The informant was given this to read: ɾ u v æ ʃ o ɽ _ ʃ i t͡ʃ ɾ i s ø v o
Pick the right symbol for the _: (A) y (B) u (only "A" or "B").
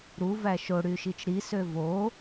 A